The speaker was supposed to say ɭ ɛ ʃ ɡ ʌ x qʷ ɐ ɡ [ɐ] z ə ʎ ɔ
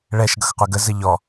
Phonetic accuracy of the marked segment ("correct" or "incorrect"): incorrect